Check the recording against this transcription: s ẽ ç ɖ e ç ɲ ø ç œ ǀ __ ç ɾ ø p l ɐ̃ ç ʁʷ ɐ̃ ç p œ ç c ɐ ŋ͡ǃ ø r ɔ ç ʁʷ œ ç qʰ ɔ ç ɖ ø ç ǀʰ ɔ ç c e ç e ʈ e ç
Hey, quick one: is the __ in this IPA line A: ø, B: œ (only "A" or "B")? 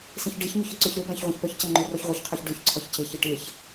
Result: A